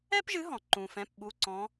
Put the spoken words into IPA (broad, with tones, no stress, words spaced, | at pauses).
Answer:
ɛ˥pʒɨ˨˥ ɦɔ̃˩ ǃũ˩fɛ̃˩˧˩pɓu˩˧˩ǀɔ̃˩˧